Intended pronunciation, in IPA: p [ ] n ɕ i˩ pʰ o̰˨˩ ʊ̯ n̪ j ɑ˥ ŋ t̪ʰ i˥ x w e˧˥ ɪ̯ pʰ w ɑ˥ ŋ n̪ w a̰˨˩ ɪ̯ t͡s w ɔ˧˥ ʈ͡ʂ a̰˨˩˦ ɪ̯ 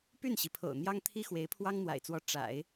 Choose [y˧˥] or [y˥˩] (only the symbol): y˥˩